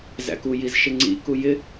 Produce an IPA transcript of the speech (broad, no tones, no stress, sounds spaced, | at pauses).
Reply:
z æ̰ k u j i z ʃ ɪ ŋ͡ǀ ḭ k u j ɪ